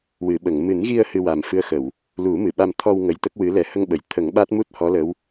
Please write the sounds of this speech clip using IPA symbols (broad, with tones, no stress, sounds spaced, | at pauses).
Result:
w ɨ˨˩˨ ɓ ə˨˩˨ ŋ m ɨ˨˩˦ n ɣ i˧ ə̯ h ɨ˧ w a˨˩ m f ɨ˧˥ ə̯ x ə˨˩˨ w | l u˨˩˦ m ɨ˨˩˨ ɓ a˧ m t̪ʰ ɔ˧ w ŋ ə˧˥ j t̪ ə˦˥ k̚ w ɨ˧˥ l ɛ˨˩˦ h ə˧ ŋ ɓ ə˨˩˨ j t̪ʰ ə˨˩˦ ŋ ɓ a˦˥ t̚ m u˦˥ t̚ h ɔ˧˥ l ə˧˥ w